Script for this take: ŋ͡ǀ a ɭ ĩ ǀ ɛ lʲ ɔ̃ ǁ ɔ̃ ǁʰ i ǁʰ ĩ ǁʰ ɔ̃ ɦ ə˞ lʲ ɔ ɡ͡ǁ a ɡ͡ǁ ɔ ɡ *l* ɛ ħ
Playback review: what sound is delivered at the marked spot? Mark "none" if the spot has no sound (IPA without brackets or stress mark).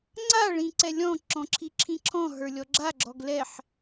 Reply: l